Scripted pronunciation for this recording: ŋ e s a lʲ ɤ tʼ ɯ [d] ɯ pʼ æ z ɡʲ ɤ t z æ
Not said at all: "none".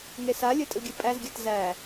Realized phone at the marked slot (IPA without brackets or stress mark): ɡʲ